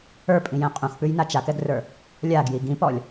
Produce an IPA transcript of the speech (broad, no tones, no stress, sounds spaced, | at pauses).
ə˞ pʼ ĩ j ɛ̃ qʼ ũ x p ʉ j n a t͡ʃ a k ɛ ɡ r ə˞ | lʲ a ɡ j i ɡ ĩ p ɔ lʲ